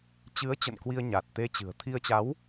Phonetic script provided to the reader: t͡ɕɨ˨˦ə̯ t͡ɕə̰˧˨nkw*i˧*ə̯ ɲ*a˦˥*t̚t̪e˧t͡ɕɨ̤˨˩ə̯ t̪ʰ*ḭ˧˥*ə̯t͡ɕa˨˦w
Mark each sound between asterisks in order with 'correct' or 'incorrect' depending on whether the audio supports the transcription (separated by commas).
correct, incorrect, incorrect